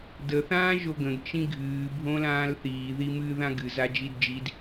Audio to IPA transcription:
də θãːʒoɡə̃ɡ t͡ʃĩɡʱɨː bʱõlãːlθiː ðimɨ ðãɡɨ zad͡ʒidd͡ʒid

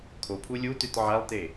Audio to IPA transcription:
kʰopʰu lʲutʉt ʕalˠte

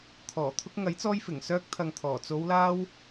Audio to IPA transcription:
t̪ʰɔː˨˩ t̪ʰʊ˧k̚ŋɐ˨˥jt͡sɔː˧jfɪ˨˩ŋ sœː˧k̚t̪ʰɐ˨ŋ t̪ʰɔː˨˩ t͡so˨˧wlaː˧w

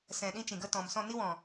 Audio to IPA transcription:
sɛ̃˨ ɗĩ˦t͡ʃĩ˨ɡə˦ tɔ̃˨msɔ̃˦˨ ni˦wɔ̃˨

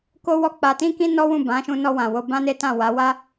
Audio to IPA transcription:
ko˧wɔ˧ k͡pa˧tĩ˦kĩ˦ nɔ˦wũ˦˨ bã˨˦ʃũ˧nɔ˧ wã˨wo˧ bã˦ne˦tã˦˨ wa˨˦wa˦

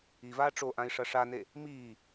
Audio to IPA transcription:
ivaː ʈ͡ʂoʔãi̯ ʂɐʂane | miː

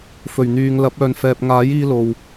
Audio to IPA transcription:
fɵ˨˩ɥn̪yː˨ŋ lɐ˨˥p̚ œː˨nfɛː˨p̚ŋaː˨˥jiː˧ lo˨w

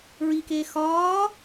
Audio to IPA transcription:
ɹikeː xɒː

